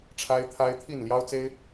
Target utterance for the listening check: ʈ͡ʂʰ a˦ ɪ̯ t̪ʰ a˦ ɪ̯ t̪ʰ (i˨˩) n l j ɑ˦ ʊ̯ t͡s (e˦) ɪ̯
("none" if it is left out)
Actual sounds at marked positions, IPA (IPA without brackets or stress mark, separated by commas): i˥˨, e˦